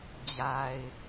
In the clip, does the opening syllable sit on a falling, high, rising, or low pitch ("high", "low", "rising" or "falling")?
low